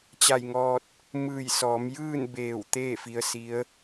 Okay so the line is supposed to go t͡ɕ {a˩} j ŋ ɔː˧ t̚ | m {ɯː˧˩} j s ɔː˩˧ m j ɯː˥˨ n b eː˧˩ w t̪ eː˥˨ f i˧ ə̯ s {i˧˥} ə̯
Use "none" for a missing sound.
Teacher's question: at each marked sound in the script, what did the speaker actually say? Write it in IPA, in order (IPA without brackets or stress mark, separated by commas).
a˧˩, ɯː˧˩, i˧˥